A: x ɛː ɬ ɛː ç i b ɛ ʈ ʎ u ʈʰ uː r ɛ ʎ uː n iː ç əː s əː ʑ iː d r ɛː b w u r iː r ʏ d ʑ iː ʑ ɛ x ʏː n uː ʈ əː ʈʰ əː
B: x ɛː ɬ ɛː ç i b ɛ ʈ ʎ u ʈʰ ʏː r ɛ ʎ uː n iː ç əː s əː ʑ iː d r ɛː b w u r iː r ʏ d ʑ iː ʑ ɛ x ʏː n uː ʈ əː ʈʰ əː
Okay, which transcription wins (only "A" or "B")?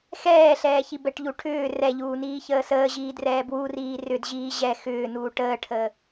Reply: B